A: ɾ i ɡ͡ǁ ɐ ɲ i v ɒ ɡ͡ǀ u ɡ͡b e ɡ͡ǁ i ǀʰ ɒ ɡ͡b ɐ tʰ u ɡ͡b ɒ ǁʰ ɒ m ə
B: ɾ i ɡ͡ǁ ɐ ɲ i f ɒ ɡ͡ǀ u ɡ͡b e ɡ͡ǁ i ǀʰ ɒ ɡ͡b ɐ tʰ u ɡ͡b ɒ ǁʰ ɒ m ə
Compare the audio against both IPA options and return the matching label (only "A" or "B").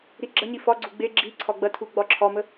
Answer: B